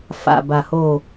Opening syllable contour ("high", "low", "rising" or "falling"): low